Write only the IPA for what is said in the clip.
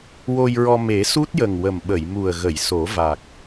w o˧ j ɹ ɔ˧ m e˨˩˦ s u˦˥ t̚ j ə˨˩ ŋ w ə˨˩ m ɓ ə˨˩˨ j m u˨˩ ə̯ ɣ ə˨˩˨ j s o˨˩˦ v a˨˩ k̚

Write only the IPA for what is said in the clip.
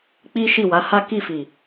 k͡p i˦ ʃ i˦˨ w a˨˦ h a˦ k i˦˨ f i˨

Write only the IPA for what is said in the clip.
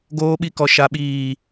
ɡ oː˦ ɓ i˦ k ɔ˨ ʃ a˨ ɓ iː˨

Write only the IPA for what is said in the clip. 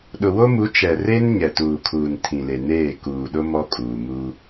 ɗ ʊ˨ w o˦ m u˨˦ t͡ʃ ɛ˨ r e˦ n ɲ ɛ˨ t uː˨ kʰ uː˨ n tʰ ĩ˨ l e˨ n eː˦˨ k uː˨ ɗ ʊ˦ m ɔ˦ kʼ uː˨ m uː˦

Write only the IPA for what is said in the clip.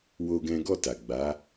w o˦ ɡ ɛ̃˦ ɡ ɔ˦˨ t a˨ ɡ͡b a˨˦

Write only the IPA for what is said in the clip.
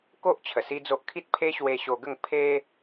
k o˦ ʔ t͡ɕʰ ə˨˩ s i˦ d͡z o˦ ʔ kʰ i˦ t̚ pʰ e˦ ɕ w e˧ ɕ o˧ ɡ ə˥˧ ŋ pʰ e˦

